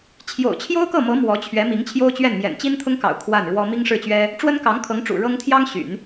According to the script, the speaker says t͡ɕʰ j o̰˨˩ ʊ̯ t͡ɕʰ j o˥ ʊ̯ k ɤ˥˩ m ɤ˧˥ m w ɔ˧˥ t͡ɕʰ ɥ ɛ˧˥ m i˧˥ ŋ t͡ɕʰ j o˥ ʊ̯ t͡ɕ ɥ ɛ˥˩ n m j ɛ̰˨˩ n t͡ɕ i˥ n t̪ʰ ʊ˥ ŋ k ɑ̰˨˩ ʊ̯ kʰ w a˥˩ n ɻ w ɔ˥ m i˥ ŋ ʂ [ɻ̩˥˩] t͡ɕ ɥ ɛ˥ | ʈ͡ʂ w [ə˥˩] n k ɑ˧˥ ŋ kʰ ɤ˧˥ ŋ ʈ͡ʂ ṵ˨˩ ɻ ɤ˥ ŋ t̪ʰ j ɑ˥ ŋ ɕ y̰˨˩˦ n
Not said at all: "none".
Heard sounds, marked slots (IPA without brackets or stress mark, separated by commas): ɻ̩˥˩, ə˥